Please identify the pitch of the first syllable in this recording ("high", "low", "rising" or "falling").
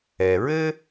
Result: low